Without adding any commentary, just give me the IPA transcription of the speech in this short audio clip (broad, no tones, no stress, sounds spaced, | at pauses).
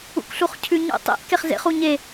ṵ k ɬ u χ cʰ ʉ ɲ ṵ tˤ ḛ ʔ k e χ z ḛ χ u ɲ e